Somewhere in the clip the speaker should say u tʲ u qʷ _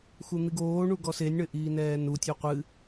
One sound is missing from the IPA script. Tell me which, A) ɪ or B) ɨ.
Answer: B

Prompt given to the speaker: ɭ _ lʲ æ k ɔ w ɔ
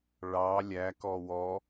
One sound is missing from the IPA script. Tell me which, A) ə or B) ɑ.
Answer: B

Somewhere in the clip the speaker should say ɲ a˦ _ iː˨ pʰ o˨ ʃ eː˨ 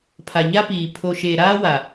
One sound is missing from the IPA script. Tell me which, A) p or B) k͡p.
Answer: A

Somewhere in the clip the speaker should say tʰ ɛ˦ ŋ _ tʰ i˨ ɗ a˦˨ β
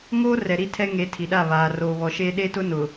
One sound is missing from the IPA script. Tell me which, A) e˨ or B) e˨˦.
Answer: B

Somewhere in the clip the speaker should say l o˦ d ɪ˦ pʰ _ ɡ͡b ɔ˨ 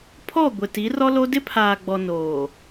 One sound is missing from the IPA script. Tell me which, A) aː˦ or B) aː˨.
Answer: B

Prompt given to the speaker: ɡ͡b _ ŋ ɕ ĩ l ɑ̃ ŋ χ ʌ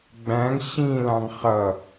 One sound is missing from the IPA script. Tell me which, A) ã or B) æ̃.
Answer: B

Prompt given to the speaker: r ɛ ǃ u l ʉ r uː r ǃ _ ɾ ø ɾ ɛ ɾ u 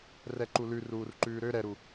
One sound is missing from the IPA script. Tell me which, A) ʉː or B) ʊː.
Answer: A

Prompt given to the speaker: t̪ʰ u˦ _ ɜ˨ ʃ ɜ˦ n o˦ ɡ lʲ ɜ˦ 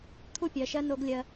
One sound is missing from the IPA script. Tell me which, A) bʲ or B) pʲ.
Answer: B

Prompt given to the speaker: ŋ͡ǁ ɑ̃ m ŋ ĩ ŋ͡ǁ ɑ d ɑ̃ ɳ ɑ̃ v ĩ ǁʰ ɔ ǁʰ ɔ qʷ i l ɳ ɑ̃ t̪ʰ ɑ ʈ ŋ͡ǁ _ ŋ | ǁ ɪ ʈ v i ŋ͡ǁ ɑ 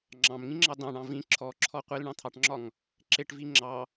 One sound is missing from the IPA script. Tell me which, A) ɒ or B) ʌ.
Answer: A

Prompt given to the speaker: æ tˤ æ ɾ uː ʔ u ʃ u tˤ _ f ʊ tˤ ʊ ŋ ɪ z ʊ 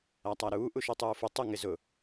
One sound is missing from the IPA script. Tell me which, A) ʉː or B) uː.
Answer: B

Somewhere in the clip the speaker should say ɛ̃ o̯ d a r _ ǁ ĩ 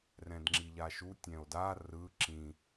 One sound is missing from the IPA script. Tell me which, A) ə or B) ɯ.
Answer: B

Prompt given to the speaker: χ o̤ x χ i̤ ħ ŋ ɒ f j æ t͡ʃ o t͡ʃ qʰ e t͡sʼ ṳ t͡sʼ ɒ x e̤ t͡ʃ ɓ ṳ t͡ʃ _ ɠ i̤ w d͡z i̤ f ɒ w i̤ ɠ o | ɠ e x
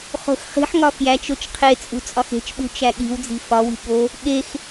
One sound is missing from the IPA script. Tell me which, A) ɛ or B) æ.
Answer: B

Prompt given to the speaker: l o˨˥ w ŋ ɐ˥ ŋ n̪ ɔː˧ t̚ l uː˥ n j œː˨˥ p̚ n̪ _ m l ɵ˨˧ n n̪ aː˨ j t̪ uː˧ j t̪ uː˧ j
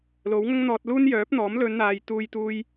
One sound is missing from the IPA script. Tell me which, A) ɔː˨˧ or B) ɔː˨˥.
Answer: B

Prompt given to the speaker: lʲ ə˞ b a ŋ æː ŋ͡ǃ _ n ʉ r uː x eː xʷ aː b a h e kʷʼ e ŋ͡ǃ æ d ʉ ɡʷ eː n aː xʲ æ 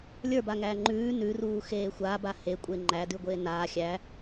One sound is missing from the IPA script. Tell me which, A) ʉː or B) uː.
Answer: A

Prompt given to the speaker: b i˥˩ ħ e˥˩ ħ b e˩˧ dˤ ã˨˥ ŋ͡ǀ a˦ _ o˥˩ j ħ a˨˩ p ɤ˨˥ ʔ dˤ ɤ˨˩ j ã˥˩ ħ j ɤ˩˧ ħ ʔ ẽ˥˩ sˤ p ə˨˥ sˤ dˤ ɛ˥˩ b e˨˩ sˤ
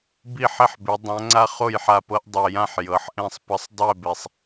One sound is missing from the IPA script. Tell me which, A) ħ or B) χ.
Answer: B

